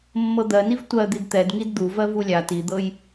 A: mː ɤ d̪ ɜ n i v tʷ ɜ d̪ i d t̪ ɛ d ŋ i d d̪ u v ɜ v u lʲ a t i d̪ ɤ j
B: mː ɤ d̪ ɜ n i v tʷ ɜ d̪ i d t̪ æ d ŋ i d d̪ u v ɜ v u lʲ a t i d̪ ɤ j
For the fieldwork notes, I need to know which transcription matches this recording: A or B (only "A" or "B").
A